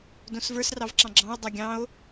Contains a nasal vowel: yes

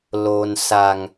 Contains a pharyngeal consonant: no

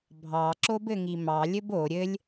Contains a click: yes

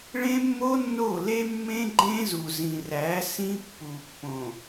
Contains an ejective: no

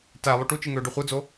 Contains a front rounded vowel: yes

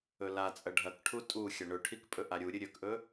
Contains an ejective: yes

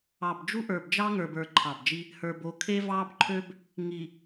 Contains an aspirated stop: yes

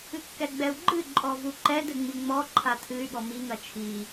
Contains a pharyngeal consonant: no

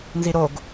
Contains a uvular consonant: no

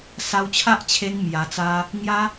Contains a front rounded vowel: no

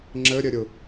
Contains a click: yes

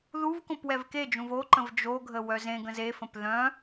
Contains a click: yes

